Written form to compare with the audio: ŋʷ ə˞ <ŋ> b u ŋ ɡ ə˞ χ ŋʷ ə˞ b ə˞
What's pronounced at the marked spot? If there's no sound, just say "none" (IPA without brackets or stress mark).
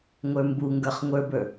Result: m